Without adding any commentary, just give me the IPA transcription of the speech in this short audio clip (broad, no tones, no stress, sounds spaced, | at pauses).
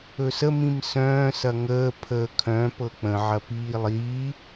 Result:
ɵ s ə m ĩ m s œ̃ː s ɐ ŋ əː pʰ əː kʰ œ̃ p ɤ k͡p ə̃ ʕ ɐ p iː lˠ iː